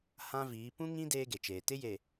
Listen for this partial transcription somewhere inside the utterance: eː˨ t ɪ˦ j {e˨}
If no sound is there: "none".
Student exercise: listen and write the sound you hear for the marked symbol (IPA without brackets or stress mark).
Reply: e˨